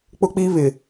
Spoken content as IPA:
k͡pʊ˦k͡piː˦βɪ˨

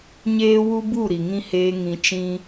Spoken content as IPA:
ɲeː˦wu˦ bu˦˨ ɾi˨ŋĩ˧heː˧ ŋĩ˧t͡ʃĩ˦

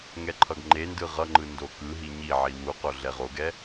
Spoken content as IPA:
ŋɛǃʰʌɡŋ͡ǃendɯ ʁʌŋ͡ǃɯ ndokɯɦi ɲiʕi wuqo ɮɛʁoɡɛ

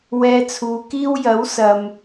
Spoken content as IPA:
wɛː˧t͡sʰuː˨˧kiː˥w jɐ˨˥wsɐ˨m

